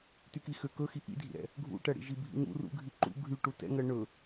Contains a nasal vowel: no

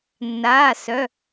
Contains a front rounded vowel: yes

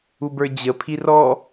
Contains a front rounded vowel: no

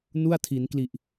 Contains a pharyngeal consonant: no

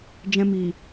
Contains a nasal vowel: yes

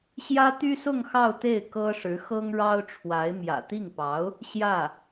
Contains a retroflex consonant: yes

